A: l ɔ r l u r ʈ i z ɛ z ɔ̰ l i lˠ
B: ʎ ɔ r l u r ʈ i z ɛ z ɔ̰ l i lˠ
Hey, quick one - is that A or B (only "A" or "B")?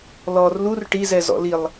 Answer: A